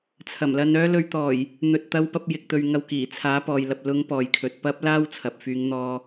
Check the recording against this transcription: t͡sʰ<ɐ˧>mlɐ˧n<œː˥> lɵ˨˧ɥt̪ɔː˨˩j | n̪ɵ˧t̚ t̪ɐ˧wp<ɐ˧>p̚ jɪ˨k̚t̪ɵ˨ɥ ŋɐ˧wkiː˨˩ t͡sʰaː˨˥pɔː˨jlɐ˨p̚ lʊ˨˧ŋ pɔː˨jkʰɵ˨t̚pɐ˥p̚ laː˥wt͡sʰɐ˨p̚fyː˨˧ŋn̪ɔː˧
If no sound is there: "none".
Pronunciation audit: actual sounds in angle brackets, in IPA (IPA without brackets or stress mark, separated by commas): ɐ˨˩, œː˥, ɐ˧